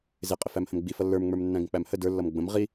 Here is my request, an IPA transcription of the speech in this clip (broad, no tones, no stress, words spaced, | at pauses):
zɪqʼɪfæm hə̃mɡ͡bi fʌlːə˞mŋ͡mə˞m nːæ̃ɡə̃k͡pæmhə də˞lːʌm ɡ͡bə̃m ʁi